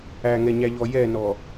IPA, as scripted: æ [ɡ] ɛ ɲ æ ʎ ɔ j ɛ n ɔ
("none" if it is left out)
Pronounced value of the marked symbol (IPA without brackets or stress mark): ŋ